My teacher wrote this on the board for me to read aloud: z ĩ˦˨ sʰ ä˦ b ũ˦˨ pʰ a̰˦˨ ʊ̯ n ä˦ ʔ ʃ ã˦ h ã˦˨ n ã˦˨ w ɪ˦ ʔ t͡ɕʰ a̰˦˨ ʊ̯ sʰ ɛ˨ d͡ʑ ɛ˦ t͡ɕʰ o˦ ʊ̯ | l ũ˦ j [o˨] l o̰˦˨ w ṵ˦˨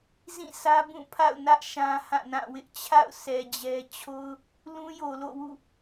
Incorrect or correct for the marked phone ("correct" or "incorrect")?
correct